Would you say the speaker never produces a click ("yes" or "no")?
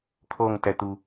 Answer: yes